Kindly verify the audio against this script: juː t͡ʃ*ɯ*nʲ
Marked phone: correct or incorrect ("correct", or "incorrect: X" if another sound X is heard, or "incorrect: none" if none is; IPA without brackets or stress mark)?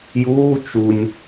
incorrect: u